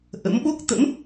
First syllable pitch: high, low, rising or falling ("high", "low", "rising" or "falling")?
rising